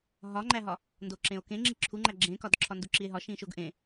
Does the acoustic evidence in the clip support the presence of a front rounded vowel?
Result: no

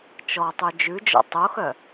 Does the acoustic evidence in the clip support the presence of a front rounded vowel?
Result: yes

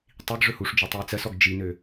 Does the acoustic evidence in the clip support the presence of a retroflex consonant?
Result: yes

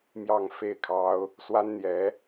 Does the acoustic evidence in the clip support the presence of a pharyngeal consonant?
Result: no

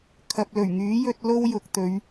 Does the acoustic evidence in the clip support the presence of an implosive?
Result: no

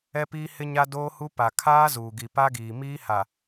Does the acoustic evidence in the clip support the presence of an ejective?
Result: no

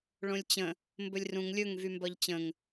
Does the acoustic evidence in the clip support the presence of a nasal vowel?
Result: yes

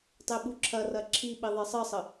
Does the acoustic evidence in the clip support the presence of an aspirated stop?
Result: yes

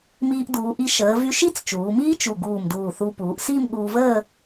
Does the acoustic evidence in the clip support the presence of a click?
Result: no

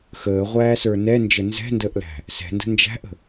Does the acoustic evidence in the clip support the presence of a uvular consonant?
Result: yes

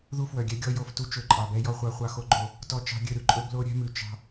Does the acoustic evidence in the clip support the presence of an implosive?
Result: no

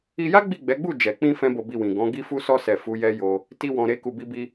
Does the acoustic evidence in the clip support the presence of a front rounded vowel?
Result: no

